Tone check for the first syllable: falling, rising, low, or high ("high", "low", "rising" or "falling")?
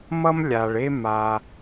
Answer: high